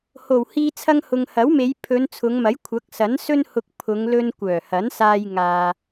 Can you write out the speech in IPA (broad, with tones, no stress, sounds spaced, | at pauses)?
h o˨˩ w h iː˧ t͡sʰ ɐ˧ ŋ h ʊ˨ ŋ h ɐ˨˥ w m e˨˧ j pʰ ɵ˨˧ n t͡sʰ ʊ˨˧ ŋ m ɐ˨˥ j kʷʰ ɐ˨˥ k̚ s ɐ˨˥ n s ɵ˥ n h ʊ˧ k̚ pʰ ʊ˨˧ ŋ l ɵ˧ n kʷ œː˨˩ h ɐ˨˥ n s aː˧ j ŋ aː˨